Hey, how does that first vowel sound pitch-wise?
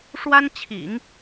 high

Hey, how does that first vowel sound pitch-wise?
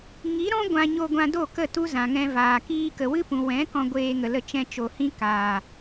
rising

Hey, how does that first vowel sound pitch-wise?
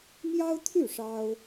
high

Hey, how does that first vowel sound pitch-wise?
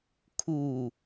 low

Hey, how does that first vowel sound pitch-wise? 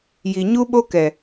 low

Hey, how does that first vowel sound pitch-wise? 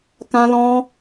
high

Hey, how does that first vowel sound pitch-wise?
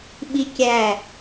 high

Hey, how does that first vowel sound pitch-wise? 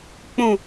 low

